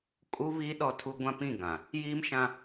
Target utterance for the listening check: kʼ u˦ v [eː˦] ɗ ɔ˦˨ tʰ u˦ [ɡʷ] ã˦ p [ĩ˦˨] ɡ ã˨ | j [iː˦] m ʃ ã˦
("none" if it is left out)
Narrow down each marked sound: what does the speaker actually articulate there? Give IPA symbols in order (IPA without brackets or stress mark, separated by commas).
iː˦, ɡʷ, ĩ˦˨, iː˦